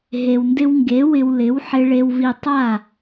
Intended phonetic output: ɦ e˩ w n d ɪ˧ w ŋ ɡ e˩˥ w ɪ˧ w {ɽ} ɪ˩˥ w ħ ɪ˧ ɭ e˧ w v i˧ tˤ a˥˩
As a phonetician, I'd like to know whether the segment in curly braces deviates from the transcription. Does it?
yes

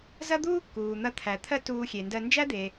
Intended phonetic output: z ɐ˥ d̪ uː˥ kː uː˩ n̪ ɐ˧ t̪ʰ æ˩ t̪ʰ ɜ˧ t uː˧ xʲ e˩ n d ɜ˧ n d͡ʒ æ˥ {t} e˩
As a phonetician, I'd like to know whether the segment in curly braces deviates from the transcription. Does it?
yes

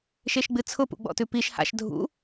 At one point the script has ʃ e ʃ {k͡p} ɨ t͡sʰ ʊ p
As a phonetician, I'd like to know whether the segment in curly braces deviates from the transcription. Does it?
yes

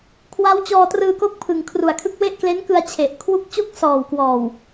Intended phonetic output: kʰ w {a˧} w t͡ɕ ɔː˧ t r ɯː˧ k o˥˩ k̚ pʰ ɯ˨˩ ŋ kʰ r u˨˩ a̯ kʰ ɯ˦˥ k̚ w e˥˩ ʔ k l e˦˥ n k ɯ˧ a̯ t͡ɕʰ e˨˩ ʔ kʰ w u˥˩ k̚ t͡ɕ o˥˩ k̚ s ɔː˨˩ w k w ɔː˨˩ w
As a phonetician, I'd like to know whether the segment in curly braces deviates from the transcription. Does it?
yes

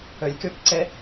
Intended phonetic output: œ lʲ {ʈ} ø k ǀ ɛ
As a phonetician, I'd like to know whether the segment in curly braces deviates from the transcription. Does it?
yes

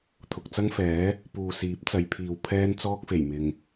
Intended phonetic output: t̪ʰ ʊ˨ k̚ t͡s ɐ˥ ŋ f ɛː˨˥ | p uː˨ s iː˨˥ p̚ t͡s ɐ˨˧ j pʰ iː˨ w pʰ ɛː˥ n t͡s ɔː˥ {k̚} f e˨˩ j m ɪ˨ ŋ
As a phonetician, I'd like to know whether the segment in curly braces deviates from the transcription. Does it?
no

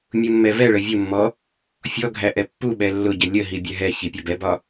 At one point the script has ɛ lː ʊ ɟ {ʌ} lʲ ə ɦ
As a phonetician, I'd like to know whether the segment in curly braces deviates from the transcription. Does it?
yes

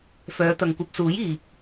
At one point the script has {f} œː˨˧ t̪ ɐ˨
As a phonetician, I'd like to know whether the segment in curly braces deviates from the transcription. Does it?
no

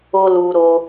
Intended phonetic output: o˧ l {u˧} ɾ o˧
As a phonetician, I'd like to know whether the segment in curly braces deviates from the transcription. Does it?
no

